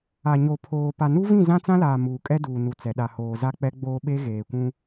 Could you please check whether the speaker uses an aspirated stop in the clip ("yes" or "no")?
yes